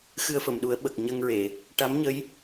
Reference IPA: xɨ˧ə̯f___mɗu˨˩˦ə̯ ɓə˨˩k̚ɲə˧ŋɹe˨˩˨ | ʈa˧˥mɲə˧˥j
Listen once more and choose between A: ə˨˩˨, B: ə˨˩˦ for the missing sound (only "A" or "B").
A